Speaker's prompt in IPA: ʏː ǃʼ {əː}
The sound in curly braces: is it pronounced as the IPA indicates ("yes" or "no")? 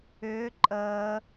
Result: yes